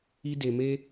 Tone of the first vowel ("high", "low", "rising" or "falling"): high